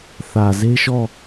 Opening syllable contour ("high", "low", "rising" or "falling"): low